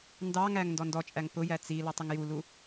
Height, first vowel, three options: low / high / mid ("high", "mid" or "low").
low